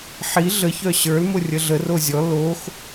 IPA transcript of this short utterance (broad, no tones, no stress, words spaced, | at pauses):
ħi ɮə çœɕə˞l mʊrʲəɮə rozʲɔ lox